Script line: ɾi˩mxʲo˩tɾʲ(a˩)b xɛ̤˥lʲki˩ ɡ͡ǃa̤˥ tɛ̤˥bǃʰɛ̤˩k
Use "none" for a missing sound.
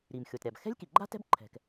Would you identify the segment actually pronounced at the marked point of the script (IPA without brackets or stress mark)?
a˩